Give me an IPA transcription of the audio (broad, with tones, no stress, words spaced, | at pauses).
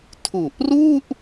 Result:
tʰu˨˩ʔru˥˩ʔ